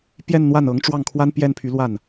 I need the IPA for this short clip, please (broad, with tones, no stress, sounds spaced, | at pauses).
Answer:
p j ɛ˥˧ n n̪ w a˥˩ n ɤ˧˥ ŋ ʈ͡ʂ w ɑ˥˩ ŋ kʰ w a˥ n p j ɛ˥˩ n pʰ y˧˥ l w a˥˩ n